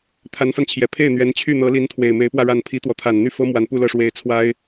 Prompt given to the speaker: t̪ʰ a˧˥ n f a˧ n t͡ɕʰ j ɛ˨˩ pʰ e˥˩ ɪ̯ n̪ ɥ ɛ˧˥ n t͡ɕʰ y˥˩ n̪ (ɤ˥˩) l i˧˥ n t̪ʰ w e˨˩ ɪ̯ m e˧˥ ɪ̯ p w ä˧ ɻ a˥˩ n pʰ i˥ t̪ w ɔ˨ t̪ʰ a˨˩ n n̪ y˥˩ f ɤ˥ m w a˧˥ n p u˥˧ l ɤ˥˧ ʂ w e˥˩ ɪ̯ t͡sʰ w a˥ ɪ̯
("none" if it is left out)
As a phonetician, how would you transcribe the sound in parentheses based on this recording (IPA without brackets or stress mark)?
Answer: ɤ˧˥